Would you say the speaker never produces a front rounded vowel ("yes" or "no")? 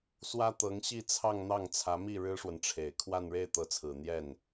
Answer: yes